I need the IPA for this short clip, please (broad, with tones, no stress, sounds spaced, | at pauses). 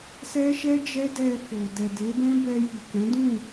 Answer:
s ɛ˦ ʃ ɛ˦ d͡ʒ ɛ˦ d ɛ˧ f o˨ d ɛ˨ d e˨˦ b ɛ̃˦ b ɛ˧ j i˨ k ɛ̃˨˦ d ũ˦˨